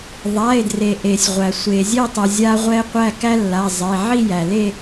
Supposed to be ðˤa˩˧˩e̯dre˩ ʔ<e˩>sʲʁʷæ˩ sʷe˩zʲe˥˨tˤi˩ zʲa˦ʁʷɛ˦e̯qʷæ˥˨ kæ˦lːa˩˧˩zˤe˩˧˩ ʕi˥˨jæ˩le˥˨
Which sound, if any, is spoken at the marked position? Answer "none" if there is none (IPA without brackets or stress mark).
e˩